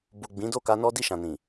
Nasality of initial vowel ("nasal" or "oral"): oral